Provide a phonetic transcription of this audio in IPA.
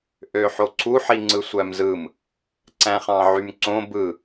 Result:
ʔ ø ħ o ǀʰ u ħ i ŋ͡ǀ ɯ sʷ æ m z ɯ m | ǀ æ̃ χ ɑ̃ ʕ y m ǀ õ b ɯ

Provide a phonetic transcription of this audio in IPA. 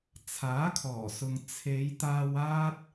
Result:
t͡sʰ aː˨˥ kʰ ɔː˨˩ s ʊ˨ ŋ t͡sʰ e˨˧ j t̪ aː˧ w aː˥ t̚

